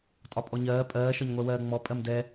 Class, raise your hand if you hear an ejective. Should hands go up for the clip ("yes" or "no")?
yes